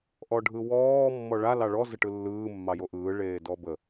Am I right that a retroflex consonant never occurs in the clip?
no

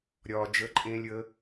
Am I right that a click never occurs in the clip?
no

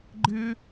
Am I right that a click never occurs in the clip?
no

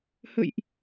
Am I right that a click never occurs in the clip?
yes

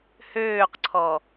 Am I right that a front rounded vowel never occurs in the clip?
no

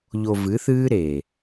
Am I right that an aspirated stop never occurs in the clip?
yes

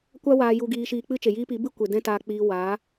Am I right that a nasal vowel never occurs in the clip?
no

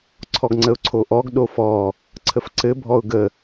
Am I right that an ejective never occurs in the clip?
yes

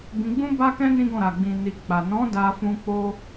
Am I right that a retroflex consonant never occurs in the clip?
yes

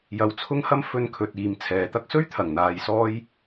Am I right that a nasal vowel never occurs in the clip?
yes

